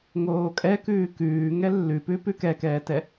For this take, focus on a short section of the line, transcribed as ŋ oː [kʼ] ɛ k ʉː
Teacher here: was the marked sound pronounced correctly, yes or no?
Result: yes